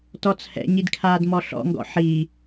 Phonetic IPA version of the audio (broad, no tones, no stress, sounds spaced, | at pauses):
t ɔ t͡sʰ ɛ̰ ɲ i d kʰ aː d m ɔ ɬ ɔ̰ ŋ ɡ ɔ̰ ħ i